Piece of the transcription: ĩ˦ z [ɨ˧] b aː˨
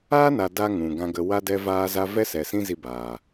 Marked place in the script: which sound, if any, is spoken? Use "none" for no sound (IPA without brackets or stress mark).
i˧